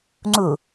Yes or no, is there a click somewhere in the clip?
yes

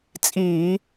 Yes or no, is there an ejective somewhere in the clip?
yes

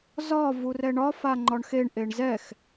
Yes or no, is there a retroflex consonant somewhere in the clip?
yes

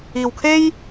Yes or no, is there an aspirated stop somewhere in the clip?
yes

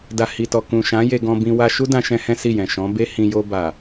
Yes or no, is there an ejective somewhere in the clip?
no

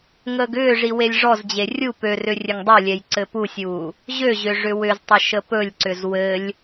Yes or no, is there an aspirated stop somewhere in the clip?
no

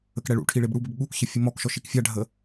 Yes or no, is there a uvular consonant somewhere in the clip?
no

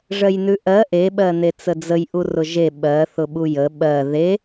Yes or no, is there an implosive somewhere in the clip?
yes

